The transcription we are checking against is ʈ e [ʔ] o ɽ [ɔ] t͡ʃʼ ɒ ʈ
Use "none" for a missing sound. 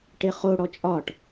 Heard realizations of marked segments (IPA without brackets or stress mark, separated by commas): χ, ɔ